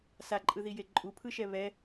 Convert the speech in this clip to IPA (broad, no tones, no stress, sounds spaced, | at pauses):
s a ǃʼ ɯ ð i j e ǃʼ u pʰ ɯ ʃ ɛ β ɛ